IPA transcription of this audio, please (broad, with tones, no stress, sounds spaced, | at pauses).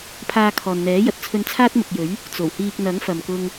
pʰ aː˧ kʰ ɔː˨ n n̪ ɛː˨˥ j ɐ˨ t̚ t͡sʰ ɵ˧ n t͡sʰ aː˥ t̚ m ʊ˨ k̚ j ɵ˨˥ ɥ | t͡s o˨˩ w h iː˧ k̚ n̪ ɐ˨˥ ŋ f ɐ˨ m k ʊ˧ ŋ